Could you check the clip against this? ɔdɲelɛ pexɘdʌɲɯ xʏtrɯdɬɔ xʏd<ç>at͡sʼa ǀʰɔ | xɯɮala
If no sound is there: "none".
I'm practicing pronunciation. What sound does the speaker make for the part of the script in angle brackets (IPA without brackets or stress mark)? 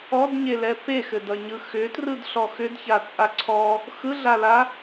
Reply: ç